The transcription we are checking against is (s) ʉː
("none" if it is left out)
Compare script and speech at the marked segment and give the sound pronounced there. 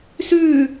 s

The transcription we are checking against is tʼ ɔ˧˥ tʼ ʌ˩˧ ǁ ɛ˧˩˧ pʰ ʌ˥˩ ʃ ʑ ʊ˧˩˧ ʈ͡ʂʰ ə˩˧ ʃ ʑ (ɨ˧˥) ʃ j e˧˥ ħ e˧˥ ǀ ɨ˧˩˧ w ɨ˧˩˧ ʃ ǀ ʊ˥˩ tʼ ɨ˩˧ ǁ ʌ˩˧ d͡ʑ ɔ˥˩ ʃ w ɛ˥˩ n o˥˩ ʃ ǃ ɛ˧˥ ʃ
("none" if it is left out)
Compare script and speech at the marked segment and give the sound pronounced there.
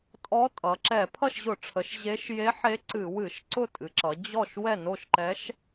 e˧˥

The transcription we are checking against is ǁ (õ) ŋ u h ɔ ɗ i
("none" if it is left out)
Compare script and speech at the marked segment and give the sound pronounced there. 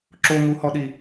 o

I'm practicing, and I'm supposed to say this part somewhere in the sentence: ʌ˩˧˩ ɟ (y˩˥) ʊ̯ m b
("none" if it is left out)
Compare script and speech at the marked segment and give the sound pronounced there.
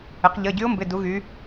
y˧˥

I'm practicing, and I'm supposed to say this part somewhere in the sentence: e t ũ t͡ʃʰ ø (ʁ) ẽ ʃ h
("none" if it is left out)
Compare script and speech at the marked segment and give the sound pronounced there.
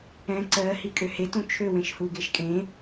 w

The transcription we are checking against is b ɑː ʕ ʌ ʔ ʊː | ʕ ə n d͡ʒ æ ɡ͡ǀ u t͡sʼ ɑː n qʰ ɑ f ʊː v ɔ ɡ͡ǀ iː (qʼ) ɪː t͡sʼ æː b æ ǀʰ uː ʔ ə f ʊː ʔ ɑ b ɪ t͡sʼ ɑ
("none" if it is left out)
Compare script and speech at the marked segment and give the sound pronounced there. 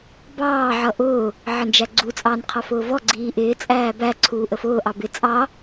ʔ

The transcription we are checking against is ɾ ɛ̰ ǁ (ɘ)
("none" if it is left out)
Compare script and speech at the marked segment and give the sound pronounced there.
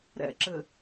ɘ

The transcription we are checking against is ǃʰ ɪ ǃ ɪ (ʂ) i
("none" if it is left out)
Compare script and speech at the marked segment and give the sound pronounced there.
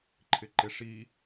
ʂ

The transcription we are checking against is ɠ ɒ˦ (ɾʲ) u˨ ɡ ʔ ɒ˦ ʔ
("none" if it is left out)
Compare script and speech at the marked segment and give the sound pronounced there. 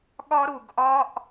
ɾ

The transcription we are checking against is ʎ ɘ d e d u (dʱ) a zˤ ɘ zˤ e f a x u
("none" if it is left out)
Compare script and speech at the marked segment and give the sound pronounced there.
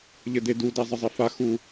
d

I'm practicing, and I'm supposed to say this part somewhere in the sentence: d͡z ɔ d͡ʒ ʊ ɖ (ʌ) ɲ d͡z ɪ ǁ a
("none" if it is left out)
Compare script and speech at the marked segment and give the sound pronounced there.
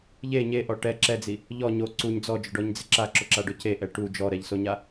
ɔ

